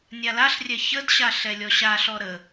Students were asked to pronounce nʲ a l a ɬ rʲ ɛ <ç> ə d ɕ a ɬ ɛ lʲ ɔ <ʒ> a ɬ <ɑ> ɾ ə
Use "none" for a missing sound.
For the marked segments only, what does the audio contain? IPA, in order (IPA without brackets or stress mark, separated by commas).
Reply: ç, ɕ, ɔ